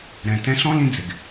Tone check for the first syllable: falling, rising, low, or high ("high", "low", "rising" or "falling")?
low